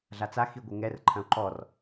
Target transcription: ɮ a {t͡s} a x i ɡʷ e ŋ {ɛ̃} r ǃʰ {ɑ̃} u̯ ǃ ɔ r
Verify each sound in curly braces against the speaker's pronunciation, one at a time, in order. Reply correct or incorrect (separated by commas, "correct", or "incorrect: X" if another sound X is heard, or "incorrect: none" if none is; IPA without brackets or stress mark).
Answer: correct, incorrect: ɛ, incorrect: ɐ̃